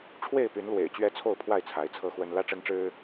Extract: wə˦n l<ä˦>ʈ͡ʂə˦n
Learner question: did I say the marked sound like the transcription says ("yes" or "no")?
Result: no